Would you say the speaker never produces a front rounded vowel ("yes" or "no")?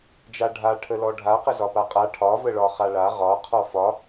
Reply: yes